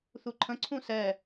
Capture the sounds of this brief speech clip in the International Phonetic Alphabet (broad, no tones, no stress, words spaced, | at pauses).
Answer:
θuǃʰə̃ ǀʰũsɛ